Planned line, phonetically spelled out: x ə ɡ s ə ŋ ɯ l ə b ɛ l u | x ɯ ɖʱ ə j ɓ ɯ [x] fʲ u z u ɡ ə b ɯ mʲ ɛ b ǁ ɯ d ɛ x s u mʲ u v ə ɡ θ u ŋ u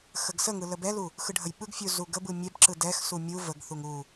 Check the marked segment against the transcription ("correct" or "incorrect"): incorrect